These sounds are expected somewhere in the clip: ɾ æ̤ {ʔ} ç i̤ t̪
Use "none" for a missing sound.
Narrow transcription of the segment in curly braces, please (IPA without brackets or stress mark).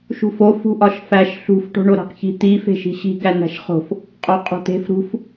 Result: q